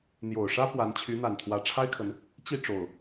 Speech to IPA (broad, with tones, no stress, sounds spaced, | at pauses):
n̪ j o˨˩ ʊ̯ ʂ ä˦ p w a˨˦ n t͡ɕʰ y˨˦ n̪ a˨˩ n t̪ʰ w ä˨˦ ʈ͡ʂʰ a˦ ɪ̯ kʰ ə˨˦ n | t͡ɕ i˥˨ ʈ͡ʂ o˨˩ ʊ̯